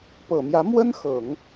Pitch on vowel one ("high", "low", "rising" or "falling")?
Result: low